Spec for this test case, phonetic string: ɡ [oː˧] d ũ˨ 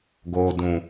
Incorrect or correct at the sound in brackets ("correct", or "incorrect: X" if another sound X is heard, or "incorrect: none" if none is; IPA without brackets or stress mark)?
correct